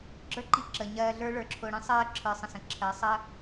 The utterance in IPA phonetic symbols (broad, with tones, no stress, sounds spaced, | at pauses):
ɡ͡ǁ ə˞˦ ǃ i˧ ǁ ə˨ ɲ ɜː˧ ɮ ə˞˦ ɭ ə˞˧ ǁʰ ʊː˧ ɽ ĩ˦ sˤ ɜː˦ ǁʰ ə˞˧ sˤ ə̃˧ s ə̃˨ ǁʰ ɜ˨˦ sˤ ə˦